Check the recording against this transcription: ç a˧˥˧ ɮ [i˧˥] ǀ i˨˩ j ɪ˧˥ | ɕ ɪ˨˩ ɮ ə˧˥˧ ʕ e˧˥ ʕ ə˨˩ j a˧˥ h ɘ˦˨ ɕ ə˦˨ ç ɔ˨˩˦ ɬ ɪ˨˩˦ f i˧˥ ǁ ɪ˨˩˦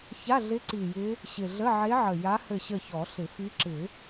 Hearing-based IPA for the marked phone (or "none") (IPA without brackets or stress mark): ɪ˧˥